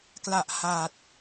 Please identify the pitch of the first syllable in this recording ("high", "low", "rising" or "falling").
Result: low